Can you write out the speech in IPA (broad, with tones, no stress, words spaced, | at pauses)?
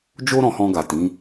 d͡ʒo˦ɾɔ̃˧hɔ̃˧ ɡa˨tĩ˨˦